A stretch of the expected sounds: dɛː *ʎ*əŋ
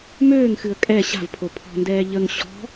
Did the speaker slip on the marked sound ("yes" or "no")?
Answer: no